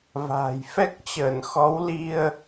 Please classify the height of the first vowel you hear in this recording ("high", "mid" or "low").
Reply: low